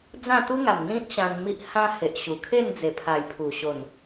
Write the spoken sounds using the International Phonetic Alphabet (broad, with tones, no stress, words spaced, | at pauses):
d͡zã˥˧t̪u˦ŋa˨˩mn̪ĩ˦t̚ ɕã˧nmi˦ʔ hã˧ he˨ʔɕu˨˩kʰe˥˧n d͡ze˨˩pʰa˨˩j pʰu˨˩ ɕo˨˩n